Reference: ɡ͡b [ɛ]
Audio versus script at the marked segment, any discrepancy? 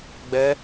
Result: no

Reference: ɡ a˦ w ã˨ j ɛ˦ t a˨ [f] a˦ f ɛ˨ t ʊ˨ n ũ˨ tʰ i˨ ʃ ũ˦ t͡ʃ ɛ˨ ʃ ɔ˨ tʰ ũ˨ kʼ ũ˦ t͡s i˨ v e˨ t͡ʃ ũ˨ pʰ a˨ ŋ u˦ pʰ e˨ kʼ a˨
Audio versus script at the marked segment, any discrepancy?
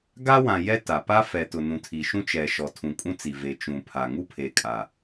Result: yes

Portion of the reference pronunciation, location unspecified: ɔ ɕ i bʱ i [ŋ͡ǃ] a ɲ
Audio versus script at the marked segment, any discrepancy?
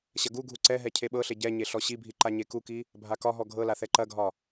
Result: yes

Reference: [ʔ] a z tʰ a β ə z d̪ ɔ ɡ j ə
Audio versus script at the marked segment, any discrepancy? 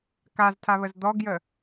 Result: yes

